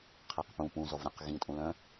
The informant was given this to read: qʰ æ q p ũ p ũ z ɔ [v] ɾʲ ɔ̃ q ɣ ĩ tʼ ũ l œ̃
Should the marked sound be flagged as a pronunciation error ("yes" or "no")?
no